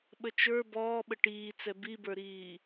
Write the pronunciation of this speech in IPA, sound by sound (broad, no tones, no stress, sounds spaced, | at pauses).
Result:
ɓ ə t͡ʃ ə˞ b ɔː ɓ ə ʈ iː t͡s ɛ b i b ə˞ ɾ iː